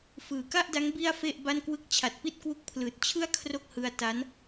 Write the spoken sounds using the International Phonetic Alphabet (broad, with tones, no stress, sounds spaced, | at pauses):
f ɯː˨˩ k a˥˩ ʔ d a˦˥ ŋ b i˥˩ a̯ f e˥˩ ʔ b a˥˩ n k w ɯ˥˩ k̚ t͡ɕʰ a˨˩ t̚ p i˥˩ t̚ k w u˦˥ k̚ pʰ l ɯː˨˩ t̚ t͡ɕʰ ɯ˥˩ a̯ kʰ r o˥˩ k̚ h ɯ˧ a̯ t a˦˥ n